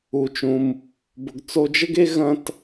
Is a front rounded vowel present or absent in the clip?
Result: absent